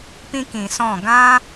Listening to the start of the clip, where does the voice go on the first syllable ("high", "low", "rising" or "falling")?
high